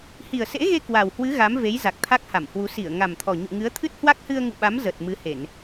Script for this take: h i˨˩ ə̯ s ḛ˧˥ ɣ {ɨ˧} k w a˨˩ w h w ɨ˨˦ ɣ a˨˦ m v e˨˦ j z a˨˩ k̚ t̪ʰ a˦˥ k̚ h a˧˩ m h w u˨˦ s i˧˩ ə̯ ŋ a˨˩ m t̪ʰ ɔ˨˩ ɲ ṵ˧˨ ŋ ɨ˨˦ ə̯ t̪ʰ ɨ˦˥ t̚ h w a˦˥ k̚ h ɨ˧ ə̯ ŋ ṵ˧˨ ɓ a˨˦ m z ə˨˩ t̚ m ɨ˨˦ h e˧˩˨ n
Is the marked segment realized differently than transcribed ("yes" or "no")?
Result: yes